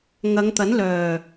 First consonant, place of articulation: velar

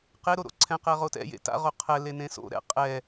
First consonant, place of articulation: uvular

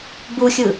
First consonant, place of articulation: labial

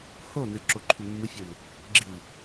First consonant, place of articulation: glottal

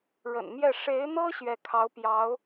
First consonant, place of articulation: retroflex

